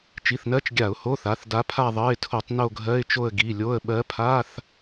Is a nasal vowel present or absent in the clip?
absent